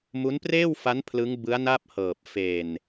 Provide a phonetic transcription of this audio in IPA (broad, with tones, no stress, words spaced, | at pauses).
mu˦˥npreː˥˩wfa˦˥n pʰlɯ˦˥ŋbɯ˦˥a̯na˥˩p̚hɤː˨˩p̚ fe˨˩n